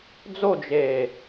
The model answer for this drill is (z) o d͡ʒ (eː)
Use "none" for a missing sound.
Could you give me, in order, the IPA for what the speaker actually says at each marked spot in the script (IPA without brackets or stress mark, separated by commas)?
d͡z, eː